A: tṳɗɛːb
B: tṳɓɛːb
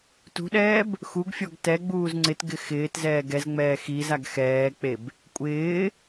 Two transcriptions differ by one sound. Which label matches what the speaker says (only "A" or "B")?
A